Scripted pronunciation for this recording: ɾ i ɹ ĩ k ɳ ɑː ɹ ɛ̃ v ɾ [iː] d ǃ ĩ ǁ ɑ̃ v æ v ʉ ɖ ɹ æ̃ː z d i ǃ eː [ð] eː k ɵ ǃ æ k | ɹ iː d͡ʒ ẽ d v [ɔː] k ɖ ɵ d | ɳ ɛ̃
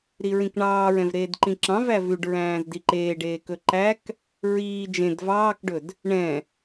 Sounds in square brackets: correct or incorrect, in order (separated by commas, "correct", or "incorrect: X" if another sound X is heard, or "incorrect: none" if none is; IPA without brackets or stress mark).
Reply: incorrect: eː, incorrect: ɖ, incorrect: ɑː